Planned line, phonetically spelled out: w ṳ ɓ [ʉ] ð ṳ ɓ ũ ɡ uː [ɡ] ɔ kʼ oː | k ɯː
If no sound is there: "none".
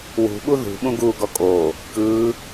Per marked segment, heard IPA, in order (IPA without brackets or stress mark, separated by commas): u, ɡ